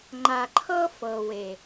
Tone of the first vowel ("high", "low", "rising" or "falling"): low